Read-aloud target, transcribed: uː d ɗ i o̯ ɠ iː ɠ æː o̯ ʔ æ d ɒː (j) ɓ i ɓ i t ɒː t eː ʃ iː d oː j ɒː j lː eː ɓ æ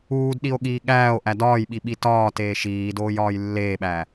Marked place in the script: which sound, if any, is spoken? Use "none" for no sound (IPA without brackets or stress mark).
j